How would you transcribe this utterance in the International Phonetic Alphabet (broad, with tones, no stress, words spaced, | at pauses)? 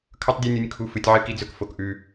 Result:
kʰɵ˦tˤdʲɵ˦nʲu˧nʲ kʰu˦fɨ˧tʲ ʕɨ˦ki˦d͡zɵ˦k fo˧kʔʉ˧